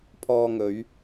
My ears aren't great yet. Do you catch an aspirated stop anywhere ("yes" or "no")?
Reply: yes